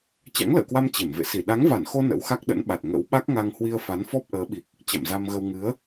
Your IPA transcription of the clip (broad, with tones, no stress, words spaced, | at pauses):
t͡ɕa̰˧˥ŋlə̰ː˧˨kwa˧m t͡ɕe˧˩mvḛ˧˨ si˧˩ ɗa˨˦ŋva˧˩nxo˧ nə̰˧˥wxa˦˥k̚ɗə̰˧˥nɓa˨˩t̚ ŋə̰˧˥w ɓa˦˥k̚ŋa˧ŋ hwi˧ə̯fa˨˦nfɔ˦˥p̚ ʔəː˨˦ɓi˨˩k̚ | t͡ɕa̰˧˨mza˧mɣə˧w ŋɨ˨˦ə̯